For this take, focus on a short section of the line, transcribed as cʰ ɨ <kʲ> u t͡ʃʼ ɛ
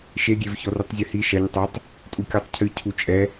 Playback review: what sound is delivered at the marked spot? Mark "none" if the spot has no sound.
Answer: cʰ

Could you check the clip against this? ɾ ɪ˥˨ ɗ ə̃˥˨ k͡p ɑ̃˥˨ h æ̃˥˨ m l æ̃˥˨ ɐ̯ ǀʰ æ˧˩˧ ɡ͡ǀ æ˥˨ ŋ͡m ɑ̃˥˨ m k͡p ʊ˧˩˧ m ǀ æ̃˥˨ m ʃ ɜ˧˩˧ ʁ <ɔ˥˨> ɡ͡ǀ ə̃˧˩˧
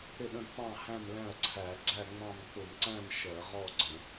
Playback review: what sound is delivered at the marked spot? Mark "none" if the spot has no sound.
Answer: ɔ˥˨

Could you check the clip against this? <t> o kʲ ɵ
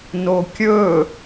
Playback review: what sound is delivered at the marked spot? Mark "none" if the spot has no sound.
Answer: n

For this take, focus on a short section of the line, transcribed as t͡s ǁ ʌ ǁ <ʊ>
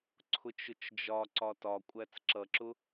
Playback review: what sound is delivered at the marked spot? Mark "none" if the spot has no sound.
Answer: ʊ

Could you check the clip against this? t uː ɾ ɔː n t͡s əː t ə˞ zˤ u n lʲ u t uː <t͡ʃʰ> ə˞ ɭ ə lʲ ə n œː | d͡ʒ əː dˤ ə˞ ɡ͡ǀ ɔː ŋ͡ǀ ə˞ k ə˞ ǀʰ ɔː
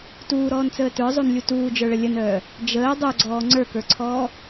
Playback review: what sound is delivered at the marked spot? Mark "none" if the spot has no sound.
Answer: d͡ʒ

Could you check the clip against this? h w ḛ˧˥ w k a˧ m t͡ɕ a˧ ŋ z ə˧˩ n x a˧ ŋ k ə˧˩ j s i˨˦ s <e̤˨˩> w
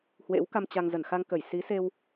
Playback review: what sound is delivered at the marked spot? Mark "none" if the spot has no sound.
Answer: e˧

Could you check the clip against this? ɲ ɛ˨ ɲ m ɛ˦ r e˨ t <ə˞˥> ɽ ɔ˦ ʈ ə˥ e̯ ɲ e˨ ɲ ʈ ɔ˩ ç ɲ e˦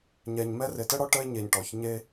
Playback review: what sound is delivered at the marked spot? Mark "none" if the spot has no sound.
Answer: ə˥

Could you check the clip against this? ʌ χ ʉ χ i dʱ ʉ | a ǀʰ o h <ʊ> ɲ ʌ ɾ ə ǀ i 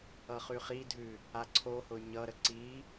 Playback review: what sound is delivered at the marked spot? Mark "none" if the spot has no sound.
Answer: ʊ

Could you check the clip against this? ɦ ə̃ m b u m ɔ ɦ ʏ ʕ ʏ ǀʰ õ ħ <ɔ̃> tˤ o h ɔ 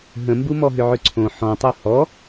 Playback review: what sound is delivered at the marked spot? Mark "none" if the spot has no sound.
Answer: ɔ̃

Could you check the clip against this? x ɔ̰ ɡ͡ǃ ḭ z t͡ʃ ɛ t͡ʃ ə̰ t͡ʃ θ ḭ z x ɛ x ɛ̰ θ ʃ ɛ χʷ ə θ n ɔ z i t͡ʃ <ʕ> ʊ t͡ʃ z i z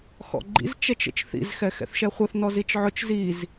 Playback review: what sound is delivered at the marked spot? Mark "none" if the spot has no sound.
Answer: ʕ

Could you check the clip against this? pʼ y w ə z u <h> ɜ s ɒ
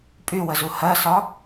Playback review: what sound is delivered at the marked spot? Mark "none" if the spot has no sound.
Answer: h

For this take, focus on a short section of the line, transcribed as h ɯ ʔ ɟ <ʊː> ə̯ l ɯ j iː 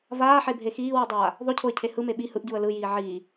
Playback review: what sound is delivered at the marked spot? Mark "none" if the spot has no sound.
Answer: uː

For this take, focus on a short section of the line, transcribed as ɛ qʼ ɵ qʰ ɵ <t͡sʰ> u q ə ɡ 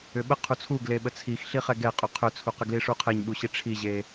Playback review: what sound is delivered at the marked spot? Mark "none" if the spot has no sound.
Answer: t͡sʰ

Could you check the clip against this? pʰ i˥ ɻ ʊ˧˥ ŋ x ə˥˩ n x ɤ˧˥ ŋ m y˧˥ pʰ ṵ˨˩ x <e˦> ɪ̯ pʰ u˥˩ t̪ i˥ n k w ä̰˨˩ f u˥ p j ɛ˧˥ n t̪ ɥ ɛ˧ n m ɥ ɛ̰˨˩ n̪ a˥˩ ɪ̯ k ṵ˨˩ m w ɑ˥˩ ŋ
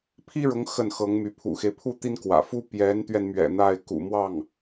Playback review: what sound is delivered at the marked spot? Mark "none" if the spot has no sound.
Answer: e˦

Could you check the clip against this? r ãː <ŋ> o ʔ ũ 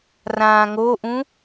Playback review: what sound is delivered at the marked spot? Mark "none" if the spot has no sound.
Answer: ŋ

